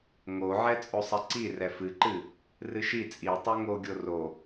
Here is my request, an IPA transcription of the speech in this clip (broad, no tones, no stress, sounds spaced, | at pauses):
ŋ o ʕ ɛ t͡sʼ o sˤ ɛ ǀ i r ɛ f ɨ ǃ ɨ | r ɨ ʃ i t͡sʼ i tˤ o ŋ o ɡʲ o r o